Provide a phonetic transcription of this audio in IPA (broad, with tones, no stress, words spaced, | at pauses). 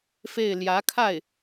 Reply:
fe˥˩ɪ̯ ljä˧˥kʰa˥˩ɪ̯